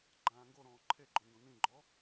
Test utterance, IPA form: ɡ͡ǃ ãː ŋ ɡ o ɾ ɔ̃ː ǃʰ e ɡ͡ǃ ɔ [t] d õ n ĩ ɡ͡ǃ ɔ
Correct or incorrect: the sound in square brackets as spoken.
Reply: incorrect: n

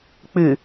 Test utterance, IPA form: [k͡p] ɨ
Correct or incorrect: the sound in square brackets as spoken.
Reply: correct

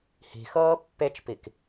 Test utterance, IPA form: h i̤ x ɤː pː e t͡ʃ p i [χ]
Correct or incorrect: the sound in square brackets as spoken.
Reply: incorrect: k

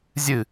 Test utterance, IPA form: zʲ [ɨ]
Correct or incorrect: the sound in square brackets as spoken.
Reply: correct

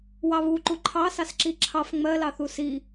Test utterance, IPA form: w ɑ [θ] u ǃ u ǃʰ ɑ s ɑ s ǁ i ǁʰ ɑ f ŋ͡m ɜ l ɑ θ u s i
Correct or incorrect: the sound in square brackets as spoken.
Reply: incorrect: β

